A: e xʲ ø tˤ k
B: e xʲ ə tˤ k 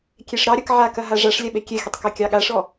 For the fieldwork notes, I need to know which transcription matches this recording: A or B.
B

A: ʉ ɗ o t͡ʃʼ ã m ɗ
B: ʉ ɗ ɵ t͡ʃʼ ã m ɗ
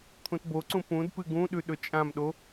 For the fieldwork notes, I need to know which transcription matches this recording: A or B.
B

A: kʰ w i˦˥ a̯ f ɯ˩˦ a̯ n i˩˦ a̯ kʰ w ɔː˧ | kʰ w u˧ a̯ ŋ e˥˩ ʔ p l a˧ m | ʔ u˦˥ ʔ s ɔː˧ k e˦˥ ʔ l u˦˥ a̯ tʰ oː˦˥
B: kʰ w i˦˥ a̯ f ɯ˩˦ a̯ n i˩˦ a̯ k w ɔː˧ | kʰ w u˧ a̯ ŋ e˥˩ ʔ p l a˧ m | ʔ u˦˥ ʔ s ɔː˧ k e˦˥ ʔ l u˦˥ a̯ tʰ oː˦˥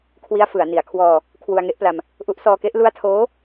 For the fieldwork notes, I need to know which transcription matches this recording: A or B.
A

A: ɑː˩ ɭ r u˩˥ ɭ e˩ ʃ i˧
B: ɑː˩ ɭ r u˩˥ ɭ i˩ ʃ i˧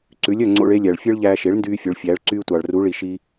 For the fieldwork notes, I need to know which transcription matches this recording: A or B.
B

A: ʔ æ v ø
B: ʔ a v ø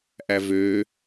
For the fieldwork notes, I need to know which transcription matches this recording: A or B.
A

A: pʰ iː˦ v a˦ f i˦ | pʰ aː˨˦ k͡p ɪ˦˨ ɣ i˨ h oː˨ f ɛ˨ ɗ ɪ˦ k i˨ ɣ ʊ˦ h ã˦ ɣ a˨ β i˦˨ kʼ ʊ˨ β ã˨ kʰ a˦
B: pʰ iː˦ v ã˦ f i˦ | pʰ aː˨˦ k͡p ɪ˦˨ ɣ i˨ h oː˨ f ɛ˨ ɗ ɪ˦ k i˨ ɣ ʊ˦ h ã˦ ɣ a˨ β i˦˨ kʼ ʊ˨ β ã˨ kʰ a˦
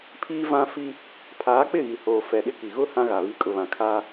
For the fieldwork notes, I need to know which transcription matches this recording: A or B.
B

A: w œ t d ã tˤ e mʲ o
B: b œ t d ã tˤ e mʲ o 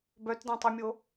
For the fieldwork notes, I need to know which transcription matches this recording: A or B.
B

